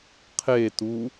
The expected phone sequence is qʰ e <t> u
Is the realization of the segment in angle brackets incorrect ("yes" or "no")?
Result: no